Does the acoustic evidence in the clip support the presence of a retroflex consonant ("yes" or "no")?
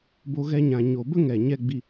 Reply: no